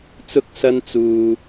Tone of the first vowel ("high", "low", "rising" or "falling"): high